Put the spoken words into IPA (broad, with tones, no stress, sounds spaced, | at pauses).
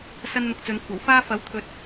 s ɐ˥ n n̪ ʊ˧ k̚ t͡s ɵ˨˧ n kʷʰ ɐ˨˩ w f aː˥ f ɐ˨˥ w t̪ʰ ɵ˨ t̚